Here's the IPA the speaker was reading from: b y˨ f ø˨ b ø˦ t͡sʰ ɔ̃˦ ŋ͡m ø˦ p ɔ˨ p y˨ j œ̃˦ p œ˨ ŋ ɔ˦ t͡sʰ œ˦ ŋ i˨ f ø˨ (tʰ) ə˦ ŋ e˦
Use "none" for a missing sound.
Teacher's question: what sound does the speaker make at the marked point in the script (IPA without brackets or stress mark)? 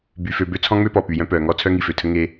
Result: tʰ